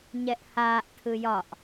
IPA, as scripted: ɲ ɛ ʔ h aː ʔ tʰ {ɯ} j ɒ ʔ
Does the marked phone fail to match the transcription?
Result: no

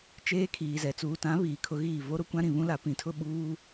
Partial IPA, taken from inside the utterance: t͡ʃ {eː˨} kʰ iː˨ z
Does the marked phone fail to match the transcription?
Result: yes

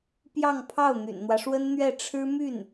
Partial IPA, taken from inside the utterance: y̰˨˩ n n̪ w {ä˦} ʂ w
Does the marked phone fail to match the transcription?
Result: no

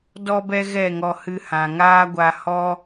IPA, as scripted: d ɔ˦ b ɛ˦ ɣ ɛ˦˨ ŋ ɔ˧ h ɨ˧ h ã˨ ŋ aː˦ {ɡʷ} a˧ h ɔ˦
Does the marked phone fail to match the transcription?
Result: no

